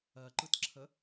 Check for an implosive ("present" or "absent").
absent